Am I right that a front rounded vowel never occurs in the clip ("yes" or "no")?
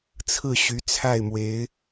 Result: no